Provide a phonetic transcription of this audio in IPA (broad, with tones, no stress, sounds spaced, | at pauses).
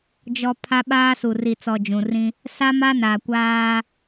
d͡ʒ ɔ˨ pʰ a˦ ɓ aː˦ s u˨ r i˨ t͡s ɔ˨ d͡ʒ ũ˨ r ĩ˦ | s a˦ m a˦ n a˨ kʷ aː˦